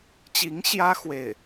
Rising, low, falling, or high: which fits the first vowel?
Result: rising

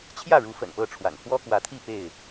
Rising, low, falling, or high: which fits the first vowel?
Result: falling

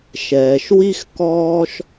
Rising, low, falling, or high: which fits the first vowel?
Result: low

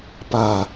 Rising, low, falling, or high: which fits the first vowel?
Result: falling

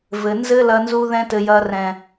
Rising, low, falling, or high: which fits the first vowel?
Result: low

